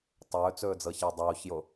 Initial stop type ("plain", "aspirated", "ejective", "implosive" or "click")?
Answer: plain